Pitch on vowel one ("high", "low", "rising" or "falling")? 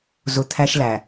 low